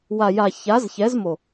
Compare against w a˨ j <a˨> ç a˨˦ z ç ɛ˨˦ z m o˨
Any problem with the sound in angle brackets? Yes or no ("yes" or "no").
no